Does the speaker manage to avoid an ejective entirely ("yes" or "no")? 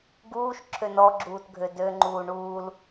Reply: yes